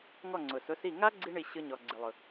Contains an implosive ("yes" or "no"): no